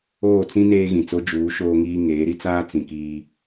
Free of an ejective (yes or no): yes